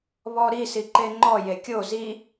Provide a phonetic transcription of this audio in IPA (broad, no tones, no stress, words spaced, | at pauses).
βɔɾi siǃeŋ͡ǃɔ jekʲo zi